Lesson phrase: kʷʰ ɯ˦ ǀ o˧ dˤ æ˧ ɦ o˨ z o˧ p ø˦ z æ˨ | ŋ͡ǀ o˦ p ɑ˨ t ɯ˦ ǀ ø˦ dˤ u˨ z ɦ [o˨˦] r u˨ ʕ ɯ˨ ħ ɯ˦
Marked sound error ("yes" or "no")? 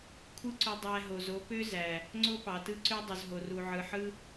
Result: yes